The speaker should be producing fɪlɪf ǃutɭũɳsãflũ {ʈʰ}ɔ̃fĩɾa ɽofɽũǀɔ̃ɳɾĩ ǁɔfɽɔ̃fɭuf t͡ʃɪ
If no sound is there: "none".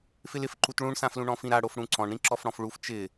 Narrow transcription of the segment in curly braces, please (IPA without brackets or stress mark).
ɳ